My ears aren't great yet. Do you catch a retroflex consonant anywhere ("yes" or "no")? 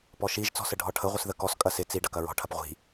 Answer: yes